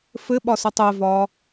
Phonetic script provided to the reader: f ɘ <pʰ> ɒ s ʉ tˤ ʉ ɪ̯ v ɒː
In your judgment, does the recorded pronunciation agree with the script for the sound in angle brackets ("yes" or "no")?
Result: no